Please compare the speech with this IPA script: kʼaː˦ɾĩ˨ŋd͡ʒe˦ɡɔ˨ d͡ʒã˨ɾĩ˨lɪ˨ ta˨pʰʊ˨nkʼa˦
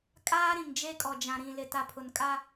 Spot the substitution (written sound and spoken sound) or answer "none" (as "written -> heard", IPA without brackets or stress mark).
ɡ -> kʼ